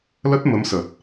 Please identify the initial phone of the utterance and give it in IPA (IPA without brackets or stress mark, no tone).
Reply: l